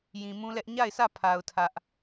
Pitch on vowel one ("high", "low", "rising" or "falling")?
low